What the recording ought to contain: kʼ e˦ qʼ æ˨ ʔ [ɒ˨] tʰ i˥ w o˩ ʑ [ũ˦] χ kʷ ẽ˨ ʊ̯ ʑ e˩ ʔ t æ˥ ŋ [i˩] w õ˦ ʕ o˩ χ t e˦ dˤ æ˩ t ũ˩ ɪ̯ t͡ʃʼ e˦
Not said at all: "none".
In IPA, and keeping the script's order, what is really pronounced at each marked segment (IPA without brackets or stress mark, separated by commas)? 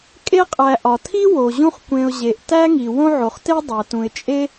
ɒ˩, ũ˦, i˩